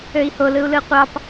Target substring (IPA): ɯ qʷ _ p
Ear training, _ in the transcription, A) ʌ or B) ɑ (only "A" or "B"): B